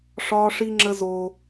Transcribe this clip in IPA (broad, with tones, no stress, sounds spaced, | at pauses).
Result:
ʂ ɒː˦ ʂ i˦ ŋ͡ǁ ə˦ z oː˦